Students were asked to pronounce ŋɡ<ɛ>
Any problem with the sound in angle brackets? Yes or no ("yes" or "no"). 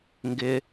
yes